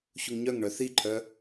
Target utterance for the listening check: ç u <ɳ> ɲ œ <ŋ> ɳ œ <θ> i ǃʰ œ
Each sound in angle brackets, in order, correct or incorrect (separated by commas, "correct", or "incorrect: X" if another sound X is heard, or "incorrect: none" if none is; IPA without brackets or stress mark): incorrect: ŋ, correct, correct